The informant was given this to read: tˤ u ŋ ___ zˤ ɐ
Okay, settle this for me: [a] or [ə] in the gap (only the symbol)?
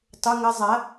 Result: ə